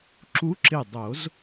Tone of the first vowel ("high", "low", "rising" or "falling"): rising